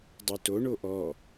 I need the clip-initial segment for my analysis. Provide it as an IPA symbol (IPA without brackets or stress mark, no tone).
dˤ